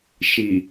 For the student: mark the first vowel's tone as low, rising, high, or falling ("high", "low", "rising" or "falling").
low